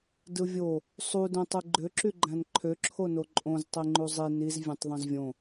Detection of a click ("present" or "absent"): present